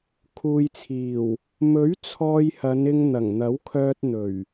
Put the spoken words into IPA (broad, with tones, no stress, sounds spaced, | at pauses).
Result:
kʰ uː˨ j t͡sʰ iː˨˩ w | m ɵ˨˥ ɥ t͡sʰ ɔː˧ j h ɐ˨˧ n ɪ˧ ŋ n̪ ɐ˨˩ ŋ n̪ ɐ˨˥ w kʰ œː˧ t̚ n̪ ɵ˨˩ ɥ